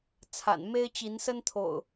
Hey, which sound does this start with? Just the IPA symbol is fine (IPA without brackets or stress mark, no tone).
t͡sʰ